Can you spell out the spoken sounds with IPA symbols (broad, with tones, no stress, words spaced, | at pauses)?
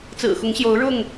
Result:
t͡sɹ̩˨˩xʊ˨˦ŋɕjo˨˦ʊ̯ ɻʊ˥˨ŋ